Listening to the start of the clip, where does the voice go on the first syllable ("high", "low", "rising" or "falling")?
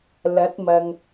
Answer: rising